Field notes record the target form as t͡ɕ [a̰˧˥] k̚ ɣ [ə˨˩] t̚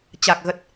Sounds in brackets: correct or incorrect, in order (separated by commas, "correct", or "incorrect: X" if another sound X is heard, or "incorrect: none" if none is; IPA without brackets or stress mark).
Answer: incorrect: a˨˩, correct